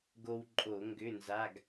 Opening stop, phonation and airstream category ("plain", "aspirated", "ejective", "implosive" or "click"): plain